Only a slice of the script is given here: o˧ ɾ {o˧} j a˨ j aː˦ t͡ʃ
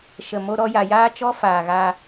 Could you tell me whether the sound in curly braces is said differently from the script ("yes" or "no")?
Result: yes